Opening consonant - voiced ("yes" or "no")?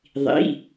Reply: yes